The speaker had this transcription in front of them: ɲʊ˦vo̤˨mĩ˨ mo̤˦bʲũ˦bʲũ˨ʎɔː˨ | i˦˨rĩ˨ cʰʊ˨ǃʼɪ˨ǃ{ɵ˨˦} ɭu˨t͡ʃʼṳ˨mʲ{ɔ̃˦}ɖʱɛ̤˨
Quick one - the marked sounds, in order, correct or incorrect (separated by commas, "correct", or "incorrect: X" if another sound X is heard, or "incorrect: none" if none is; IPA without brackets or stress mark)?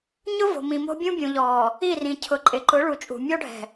incorrect: ʊ˨˦, incorrect: ɔ˦